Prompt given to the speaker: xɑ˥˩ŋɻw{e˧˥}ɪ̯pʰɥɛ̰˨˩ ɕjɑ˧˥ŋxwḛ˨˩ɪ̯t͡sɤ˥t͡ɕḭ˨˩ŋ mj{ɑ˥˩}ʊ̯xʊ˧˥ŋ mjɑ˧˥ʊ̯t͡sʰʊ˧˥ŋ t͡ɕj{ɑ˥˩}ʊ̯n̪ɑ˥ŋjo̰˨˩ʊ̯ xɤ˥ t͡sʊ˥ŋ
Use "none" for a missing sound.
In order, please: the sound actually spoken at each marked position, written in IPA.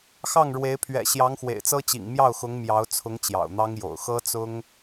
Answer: e˧˥, ɑ˥˩, ɑ̰˨˩

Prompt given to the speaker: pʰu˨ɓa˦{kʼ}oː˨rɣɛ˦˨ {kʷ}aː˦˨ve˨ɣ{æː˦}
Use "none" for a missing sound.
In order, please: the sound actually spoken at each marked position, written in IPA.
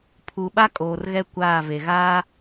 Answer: kʼ, kʷ, aː˦

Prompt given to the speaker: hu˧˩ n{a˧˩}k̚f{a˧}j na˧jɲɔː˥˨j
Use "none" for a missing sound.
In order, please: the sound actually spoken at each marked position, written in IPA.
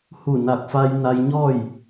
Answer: a˧˩, a˧

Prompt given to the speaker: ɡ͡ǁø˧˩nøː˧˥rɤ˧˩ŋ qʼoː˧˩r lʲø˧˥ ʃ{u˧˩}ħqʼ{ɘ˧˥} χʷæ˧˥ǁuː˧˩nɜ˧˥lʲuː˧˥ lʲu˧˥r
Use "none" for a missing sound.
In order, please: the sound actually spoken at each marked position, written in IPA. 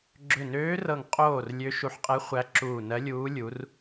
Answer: u˧˩, ɛ˧˥

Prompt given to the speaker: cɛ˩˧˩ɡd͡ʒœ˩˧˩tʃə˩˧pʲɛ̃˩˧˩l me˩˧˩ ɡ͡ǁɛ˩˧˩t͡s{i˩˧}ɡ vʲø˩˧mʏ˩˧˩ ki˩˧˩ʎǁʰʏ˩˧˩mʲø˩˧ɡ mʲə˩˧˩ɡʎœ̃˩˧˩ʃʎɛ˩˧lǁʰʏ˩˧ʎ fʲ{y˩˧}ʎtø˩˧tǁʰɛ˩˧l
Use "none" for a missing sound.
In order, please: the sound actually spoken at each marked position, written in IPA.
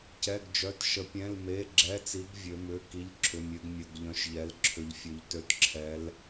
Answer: i˩˧, ø˩˧

